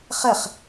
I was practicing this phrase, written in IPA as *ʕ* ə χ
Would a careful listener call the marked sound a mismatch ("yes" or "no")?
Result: yes